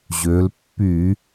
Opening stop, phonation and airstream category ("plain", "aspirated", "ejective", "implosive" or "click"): plain